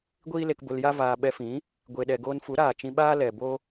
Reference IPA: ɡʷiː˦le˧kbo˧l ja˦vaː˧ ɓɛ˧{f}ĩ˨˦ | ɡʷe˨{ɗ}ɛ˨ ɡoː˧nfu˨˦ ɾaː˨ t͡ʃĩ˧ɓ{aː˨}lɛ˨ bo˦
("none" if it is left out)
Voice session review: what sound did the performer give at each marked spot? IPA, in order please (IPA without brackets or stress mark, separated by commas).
f, ɗ, aː˦